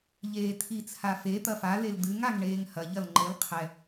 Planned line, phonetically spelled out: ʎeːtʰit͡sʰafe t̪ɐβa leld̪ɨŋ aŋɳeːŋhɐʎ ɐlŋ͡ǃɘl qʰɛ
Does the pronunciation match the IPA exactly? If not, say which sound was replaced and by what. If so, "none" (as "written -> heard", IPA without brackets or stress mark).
β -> f